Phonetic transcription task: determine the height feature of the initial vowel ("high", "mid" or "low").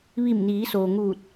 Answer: high